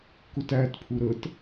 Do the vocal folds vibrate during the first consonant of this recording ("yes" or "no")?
no